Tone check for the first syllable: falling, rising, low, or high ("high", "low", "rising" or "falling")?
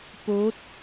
rising